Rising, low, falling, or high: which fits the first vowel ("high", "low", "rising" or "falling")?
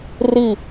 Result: falling